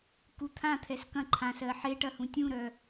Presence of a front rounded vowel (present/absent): present